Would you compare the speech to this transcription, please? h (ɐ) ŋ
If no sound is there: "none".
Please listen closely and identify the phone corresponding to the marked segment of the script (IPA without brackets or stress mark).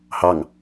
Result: ɑ